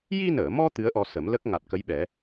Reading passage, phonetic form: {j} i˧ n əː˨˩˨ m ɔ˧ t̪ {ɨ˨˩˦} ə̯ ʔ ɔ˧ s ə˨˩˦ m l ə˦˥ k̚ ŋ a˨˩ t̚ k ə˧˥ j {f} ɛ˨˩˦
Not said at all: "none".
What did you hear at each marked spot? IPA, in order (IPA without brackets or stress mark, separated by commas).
j, ɨ˧˥, ɓ